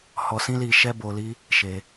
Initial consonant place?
glottal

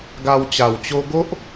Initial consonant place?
velar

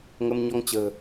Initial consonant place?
velar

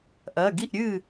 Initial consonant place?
glottal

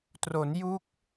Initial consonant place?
alveolar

